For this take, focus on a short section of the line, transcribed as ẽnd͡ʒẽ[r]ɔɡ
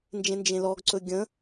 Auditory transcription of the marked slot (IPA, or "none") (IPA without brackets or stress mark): l